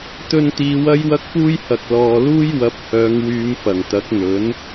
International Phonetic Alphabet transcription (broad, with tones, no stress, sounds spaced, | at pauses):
t̪ ɵ˧ n t̪ iː˨˧ w ɐ˥ j w ɐ˥ k̚ p uː˥ j h ɐ˨ k̚ l ɔː˨ l uː˥ j w ɐ˨˥ p̚ h œː˨˧ ŋ w yː˨˧ m f ɐ˨˩ ŋ t̪ ɐ˨˥ k̚ n̪ ɵ˨˥ n